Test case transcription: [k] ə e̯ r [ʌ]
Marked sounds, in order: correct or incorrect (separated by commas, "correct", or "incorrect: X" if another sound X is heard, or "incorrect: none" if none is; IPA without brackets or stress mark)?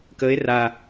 correct, incorrect: a